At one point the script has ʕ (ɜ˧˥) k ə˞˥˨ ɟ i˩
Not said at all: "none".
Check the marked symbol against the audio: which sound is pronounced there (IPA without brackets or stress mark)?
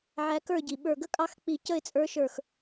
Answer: æ˧˥